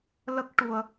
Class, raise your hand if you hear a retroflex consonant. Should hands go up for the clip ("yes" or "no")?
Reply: yes